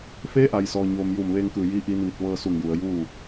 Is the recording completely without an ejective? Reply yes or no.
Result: yes